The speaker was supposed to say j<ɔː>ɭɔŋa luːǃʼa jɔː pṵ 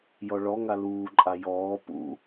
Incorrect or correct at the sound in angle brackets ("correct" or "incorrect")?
incorrect